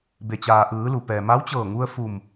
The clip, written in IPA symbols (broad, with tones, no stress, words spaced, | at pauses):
be˩t͡ɕaː˩ʔɯː˩˧lu˩ pɛː˩ma˧˥wt͡ɕɤː˧˩ŋu˧ə̯ fu˧˩m